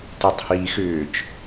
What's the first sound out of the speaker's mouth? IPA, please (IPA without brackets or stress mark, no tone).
t